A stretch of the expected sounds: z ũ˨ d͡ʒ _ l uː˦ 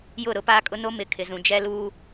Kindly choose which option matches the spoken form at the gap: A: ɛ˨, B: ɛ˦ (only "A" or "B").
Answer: B